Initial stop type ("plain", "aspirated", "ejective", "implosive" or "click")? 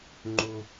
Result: click